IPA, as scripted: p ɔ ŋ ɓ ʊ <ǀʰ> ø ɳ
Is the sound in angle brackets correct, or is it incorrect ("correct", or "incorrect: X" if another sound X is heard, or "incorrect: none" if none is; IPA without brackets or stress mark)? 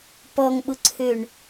correct